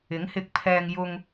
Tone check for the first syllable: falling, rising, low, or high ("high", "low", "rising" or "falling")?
rising